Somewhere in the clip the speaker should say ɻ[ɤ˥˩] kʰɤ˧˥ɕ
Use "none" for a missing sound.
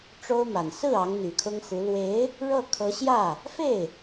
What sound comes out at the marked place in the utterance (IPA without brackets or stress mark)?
ɤ˥˩